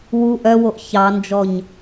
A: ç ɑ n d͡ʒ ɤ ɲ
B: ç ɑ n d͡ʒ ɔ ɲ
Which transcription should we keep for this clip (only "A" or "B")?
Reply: B